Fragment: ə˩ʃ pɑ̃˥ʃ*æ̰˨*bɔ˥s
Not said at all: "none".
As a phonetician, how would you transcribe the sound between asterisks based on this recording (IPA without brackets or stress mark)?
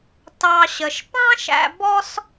æ̰˨